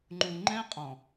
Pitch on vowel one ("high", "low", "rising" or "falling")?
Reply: low